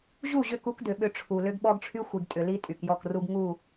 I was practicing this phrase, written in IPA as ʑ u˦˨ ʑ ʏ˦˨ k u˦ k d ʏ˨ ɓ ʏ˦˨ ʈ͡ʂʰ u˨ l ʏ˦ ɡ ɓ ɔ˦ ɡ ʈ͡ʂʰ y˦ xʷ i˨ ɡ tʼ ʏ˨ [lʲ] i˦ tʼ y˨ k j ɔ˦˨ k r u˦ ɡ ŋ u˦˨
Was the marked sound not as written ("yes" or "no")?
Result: yes